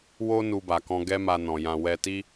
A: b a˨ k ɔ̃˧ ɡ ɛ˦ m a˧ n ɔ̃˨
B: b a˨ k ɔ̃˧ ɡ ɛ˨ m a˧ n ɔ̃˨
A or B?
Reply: A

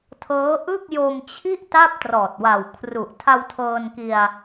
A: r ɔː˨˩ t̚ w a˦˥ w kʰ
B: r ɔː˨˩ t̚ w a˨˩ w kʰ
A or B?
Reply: B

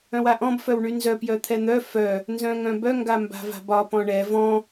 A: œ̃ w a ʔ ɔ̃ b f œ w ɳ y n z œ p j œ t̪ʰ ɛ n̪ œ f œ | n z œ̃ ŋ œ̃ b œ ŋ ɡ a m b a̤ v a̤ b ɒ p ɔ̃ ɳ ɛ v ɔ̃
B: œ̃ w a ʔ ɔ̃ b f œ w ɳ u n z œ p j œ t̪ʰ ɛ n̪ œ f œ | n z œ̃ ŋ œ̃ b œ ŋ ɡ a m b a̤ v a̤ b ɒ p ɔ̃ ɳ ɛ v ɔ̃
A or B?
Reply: A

